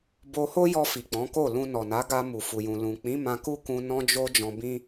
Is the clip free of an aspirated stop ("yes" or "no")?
yes